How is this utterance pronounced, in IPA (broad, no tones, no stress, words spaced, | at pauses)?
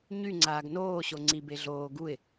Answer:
ɲyŋ͡ǀaːɡ noːɕo ŋ͡ǀibe ɮoː ɡuɪ̯